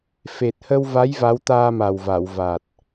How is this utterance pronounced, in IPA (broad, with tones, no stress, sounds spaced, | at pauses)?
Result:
f e˨˩ t̚ h ə˧ w v a˧˥ j v a˧˥ w t̪ aː˧ m a˨˩ w v a˨˩˨ w v a˨˩ t̚